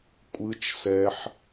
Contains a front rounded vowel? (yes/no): no